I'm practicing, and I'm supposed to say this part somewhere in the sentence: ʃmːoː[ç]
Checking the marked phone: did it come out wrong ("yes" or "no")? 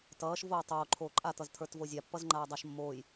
yes